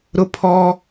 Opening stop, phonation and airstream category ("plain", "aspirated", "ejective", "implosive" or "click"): aspirated